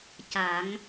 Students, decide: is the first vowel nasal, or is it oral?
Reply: oral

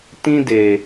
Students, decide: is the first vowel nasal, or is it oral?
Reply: nasal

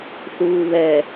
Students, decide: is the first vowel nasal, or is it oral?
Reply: oral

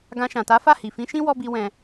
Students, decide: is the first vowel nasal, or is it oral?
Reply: nasal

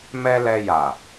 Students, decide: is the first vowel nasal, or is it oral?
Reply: oral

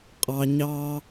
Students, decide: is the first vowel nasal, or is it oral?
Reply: oral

